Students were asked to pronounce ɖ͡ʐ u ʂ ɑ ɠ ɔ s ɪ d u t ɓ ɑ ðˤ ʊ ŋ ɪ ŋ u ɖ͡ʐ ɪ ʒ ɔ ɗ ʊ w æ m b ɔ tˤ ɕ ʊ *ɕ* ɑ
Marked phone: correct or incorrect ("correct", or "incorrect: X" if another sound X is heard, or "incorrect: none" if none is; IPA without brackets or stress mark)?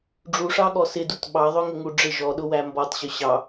correct